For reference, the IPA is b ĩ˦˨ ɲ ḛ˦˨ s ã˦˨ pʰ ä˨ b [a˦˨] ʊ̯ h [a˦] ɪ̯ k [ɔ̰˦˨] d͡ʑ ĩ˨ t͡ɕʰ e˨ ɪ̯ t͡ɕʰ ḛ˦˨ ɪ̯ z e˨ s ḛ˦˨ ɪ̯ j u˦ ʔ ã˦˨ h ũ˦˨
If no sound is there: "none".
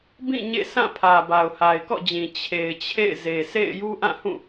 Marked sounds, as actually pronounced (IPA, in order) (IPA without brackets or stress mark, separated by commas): a˨, a˨, ɔ̰˦˨